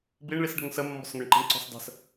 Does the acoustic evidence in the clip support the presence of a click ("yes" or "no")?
yes